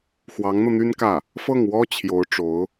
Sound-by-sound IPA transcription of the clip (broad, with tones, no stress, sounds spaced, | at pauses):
x w ɑ˧˥ ŋ n̪ ɤ˧ n̪ y˥ n k ä˥˩ | f ɤ˥˩ ŋ w ɔ˥ t͡ɕʰ j o˧˥ ʊ̯ ʈ͡ʂ o˧˥ ʊ̯